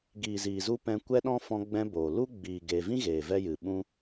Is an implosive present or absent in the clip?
present